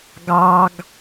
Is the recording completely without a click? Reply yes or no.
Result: yes